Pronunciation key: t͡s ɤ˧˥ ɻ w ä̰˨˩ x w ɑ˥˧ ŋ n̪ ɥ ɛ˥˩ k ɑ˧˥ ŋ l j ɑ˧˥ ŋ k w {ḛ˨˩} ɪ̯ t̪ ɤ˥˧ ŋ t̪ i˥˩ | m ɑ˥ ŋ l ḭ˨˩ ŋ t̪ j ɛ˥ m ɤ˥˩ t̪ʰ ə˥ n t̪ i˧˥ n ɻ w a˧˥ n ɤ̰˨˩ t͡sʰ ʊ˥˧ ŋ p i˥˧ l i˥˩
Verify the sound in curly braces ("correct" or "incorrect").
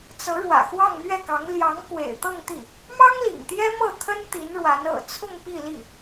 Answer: correct